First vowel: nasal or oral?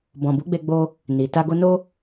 nasal